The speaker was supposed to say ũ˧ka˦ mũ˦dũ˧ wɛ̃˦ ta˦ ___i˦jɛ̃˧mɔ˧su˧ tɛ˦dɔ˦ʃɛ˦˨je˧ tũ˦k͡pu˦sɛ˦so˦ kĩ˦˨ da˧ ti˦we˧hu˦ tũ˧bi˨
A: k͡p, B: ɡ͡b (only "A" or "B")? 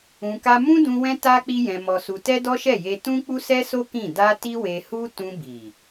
A